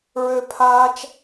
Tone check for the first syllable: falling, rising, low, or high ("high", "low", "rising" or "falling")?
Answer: high